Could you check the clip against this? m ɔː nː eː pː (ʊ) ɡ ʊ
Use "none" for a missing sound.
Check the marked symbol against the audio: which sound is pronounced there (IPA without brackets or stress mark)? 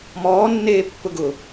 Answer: ʊ